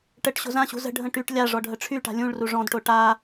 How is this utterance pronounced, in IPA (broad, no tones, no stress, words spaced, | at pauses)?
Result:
ʈəʈ ɕo̤zãɕṳ zə̤ɖʱə̃ ʈyʈ lʲa ʐɔɖʱəʈ͡ʂʰyʈa̤ lʲũɭru ʐɔ̃dʈo ʈa